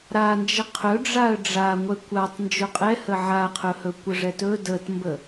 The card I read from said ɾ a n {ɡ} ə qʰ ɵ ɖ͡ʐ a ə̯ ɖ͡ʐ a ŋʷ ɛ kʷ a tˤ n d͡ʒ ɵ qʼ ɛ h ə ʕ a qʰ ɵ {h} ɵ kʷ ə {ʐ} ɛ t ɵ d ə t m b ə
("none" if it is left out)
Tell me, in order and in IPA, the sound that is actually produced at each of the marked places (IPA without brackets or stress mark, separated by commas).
d͡ʒ, h, ʐ